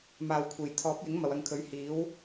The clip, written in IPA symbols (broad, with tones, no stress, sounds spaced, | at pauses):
m aː˨ w kʷʰ e˨˩ j t̪ʰ ɔː˨˥ p̚ j ɪ˨˥ ŋ m ɐ˨ w ɐ˧ ŋ kʰ ɵ˨˥ ɥ h iː˨˥ w